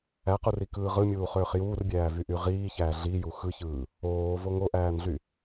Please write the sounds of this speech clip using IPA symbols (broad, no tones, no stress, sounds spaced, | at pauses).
æ q u r i k ɯː ʁ ɯ mʲ uː χ øː χ j uː r bʲ æː v y ʔ y ʁ iː ç æː ɮ i j u x ɯ ç ɯː | oː v o ŋ o ʔ æː n ɮ y